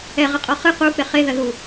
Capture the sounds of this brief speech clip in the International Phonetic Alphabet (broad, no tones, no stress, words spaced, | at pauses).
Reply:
ɛʁɐqʼɔ χɨ quk͡pe χeðɐðu